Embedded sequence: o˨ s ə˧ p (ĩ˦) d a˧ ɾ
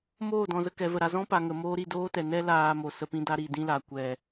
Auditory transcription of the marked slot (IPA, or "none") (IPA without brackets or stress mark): ĩ˧